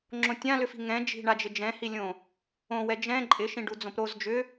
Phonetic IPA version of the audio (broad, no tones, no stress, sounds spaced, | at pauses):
ŋ͡ǁ õ tʲ ã l ʏ f i̤ ŋ ɛ̃ d͡ʒ i̤ ɳ a d͡ʒ ɪ d͡ʒ ɛ̃ h i lʲ õ | õ w ɛ d͡ʒ ɛ̃ ǃʼ ɪ ʃ ĩ ɖ u d͡z õ p ɾ o z d͡ʒ ʏ